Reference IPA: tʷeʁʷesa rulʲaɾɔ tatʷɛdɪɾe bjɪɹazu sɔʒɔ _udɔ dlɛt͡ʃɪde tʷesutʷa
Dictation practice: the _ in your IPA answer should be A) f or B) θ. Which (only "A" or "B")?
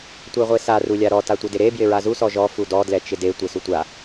A